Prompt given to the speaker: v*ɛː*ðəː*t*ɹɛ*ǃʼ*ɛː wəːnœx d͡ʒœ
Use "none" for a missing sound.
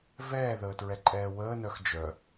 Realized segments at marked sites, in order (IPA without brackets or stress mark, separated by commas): ɛː, t, ǃʼ